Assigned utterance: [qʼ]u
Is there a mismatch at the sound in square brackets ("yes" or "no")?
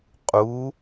no